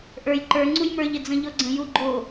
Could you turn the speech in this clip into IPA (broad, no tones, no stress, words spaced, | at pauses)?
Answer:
ʔə˞j ǃə˞ ŋ͡ǀujmə˞ʎ ɪd͡zə̃ʎɔɡ͡ǀə̃ juɡ͡ǃo